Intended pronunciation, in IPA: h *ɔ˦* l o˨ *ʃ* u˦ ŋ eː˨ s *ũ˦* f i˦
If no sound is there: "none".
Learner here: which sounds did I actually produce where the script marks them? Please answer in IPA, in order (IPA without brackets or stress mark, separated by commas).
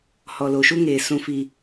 ɔ˨, ʃ, ũ˦